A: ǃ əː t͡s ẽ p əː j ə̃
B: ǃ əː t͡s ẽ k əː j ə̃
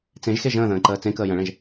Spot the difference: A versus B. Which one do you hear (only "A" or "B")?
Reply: B